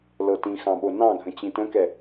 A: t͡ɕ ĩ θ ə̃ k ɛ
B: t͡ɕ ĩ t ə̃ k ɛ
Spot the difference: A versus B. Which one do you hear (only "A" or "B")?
B